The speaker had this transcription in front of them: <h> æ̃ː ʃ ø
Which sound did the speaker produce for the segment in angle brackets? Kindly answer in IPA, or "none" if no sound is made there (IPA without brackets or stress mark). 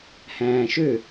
h